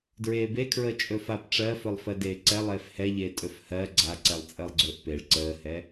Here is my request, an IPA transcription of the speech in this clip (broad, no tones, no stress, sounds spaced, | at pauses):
d ɹ eː b e kʰ ɹ əː t͡ʃʼ ɵ f a p ʈ͡ʂ ɜ f ɵ lˠ f ɜ d eː ǀ ɛ lˠ eː f h ɛ ʎ eː tʼ ɵ f h ɜ ɡ͡ǀ a ǀ ɛ lˠ t͡sʼ əː lˠ ɡ͡ǀ ɵː ʔ p e ɭ ǀ əː h ɛ